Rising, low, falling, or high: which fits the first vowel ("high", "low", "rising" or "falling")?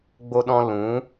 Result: high